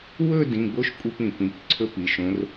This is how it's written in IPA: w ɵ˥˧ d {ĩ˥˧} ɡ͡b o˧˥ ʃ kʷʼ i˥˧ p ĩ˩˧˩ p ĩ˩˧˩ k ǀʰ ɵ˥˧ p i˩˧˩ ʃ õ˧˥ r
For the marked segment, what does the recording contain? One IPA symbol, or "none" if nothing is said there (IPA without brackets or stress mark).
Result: ĩ˩˧˩